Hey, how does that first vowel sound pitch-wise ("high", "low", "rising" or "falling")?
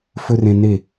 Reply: high